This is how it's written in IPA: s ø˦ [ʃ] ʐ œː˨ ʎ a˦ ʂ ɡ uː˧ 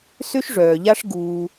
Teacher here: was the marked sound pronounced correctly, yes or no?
yes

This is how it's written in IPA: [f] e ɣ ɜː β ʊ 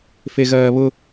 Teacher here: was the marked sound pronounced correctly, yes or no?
yes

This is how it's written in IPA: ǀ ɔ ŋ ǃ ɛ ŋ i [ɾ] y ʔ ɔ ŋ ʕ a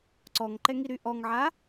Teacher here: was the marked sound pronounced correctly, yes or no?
yes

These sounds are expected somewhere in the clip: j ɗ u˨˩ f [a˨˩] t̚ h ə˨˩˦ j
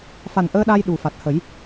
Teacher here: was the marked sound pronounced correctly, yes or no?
yes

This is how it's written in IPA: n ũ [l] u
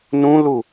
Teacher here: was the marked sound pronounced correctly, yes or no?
yes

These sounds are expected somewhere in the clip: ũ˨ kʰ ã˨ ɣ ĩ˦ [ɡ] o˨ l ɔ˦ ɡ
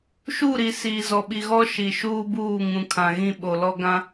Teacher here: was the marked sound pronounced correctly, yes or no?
no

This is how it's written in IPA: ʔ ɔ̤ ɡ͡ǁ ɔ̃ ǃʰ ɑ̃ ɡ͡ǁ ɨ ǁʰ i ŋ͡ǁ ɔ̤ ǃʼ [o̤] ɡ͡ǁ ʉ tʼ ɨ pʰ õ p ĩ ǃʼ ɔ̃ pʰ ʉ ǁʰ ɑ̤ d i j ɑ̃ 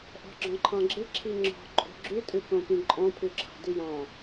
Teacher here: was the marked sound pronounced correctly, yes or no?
yes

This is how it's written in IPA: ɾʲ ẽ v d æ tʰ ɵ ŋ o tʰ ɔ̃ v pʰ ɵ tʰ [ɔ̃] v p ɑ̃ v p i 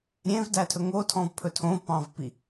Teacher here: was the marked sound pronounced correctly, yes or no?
no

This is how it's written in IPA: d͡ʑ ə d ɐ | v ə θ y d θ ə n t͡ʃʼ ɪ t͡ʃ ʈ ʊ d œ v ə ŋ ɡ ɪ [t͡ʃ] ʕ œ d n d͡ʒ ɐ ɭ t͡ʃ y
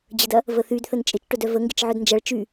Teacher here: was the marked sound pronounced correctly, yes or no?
yes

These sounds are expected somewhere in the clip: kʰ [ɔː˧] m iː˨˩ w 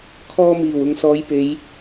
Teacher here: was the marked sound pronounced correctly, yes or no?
yes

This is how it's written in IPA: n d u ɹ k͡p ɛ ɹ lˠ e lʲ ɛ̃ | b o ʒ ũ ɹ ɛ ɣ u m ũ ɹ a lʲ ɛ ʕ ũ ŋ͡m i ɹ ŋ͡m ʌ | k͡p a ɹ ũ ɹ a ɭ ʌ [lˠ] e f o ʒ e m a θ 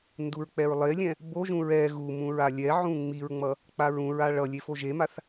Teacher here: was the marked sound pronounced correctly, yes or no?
no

